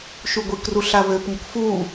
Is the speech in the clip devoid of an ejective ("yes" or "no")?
yes